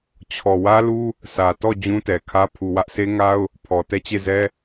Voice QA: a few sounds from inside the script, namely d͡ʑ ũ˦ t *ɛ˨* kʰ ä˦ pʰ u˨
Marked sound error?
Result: no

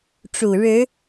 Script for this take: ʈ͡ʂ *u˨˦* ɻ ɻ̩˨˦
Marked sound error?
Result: yes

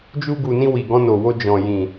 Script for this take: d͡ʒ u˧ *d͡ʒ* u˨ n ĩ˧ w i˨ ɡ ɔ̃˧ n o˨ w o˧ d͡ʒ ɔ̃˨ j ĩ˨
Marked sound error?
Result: yes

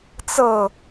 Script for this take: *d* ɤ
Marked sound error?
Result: yes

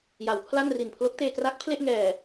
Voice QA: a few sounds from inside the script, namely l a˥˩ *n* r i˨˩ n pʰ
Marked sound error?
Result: no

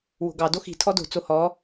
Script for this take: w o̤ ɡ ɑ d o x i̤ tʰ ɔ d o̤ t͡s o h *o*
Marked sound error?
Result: yes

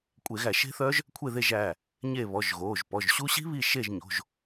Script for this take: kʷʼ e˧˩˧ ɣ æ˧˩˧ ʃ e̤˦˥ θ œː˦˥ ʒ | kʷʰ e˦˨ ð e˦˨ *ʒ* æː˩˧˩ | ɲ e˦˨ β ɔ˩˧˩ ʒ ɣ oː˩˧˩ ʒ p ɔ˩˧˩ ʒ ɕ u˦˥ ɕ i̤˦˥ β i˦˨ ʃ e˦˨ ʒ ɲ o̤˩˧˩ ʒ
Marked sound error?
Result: no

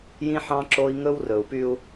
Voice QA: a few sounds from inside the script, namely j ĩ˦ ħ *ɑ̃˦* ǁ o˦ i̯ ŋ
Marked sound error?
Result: no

